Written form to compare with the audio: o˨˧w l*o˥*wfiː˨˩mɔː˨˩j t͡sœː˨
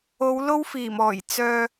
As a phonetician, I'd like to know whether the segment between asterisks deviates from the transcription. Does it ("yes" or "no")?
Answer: no